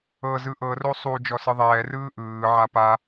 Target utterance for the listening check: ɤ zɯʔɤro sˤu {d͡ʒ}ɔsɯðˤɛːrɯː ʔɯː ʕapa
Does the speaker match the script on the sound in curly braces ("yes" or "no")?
yes